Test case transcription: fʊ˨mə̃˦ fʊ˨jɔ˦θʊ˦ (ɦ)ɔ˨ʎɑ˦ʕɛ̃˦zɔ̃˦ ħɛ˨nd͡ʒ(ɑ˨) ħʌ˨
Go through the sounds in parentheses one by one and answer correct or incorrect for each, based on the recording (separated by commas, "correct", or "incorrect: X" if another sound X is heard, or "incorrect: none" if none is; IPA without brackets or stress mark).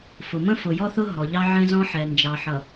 correct, correct